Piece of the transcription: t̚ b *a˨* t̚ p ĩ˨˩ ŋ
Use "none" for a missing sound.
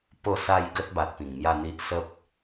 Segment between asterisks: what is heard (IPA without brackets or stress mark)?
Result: a˨